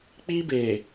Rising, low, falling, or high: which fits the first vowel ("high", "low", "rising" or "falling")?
high